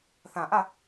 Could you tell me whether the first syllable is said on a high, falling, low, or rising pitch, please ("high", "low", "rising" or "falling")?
low